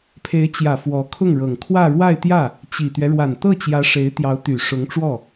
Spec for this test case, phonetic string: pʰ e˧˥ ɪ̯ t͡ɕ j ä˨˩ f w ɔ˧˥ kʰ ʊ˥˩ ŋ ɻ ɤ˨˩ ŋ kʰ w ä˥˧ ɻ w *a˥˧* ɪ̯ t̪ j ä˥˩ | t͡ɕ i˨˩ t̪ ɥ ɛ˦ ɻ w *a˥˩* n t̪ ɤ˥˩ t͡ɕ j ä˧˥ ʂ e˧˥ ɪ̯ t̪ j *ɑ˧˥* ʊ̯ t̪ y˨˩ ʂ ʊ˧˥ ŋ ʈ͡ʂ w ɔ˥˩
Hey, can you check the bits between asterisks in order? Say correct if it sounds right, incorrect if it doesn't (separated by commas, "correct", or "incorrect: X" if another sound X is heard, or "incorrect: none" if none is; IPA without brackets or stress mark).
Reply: correct, incorrect: a˨˩, correct